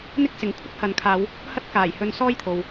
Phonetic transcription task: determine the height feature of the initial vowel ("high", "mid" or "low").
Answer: high